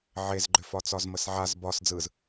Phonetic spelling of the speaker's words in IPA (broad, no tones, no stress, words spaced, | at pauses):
ʕezɡ͡ǃʏfɒ t͡sɒzməsʕaz bɒs d͡zɯz